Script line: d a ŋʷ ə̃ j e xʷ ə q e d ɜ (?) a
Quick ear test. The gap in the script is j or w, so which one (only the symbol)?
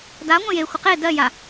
j